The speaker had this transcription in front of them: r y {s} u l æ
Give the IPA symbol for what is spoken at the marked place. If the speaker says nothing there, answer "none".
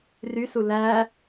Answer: s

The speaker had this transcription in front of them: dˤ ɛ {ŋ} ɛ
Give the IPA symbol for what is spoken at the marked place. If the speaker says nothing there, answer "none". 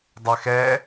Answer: x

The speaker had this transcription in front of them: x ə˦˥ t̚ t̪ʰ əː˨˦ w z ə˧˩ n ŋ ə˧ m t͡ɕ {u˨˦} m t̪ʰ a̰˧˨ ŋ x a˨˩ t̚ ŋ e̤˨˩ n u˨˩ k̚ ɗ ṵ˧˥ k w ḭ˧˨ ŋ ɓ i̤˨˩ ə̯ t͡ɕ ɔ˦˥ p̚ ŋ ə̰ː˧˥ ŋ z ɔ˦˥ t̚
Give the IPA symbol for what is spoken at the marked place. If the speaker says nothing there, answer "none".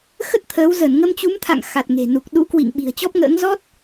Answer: u˨˦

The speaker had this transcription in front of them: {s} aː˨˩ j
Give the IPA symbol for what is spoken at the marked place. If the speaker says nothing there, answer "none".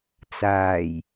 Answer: t͡s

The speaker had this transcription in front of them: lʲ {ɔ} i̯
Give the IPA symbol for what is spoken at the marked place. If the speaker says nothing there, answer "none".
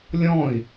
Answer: ɔ̃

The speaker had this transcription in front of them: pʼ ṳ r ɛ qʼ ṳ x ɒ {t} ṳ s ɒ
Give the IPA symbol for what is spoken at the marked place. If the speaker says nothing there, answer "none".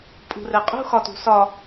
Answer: t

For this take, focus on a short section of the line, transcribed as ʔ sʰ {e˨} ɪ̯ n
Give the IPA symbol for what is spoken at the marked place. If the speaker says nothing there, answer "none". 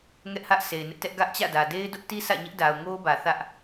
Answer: e˨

